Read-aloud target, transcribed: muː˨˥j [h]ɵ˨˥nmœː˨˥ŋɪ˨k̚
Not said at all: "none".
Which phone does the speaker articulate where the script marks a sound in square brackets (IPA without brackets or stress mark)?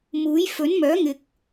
f